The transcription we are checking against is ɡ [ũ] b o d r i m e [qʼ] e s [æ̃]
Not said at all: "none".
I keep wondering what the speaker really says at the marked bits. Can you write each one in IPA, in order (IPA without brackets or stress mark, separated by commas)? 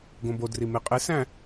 õ, qʼ, æ̃